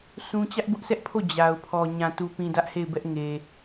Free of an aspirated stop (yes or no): no